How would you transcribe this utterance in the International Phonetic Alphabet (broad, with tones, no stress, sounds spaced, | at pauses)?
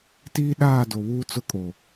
t iː˦ ɗ aː˦˨ d o˨ β uː˦ t͡s ʊ˦ kʼ o˨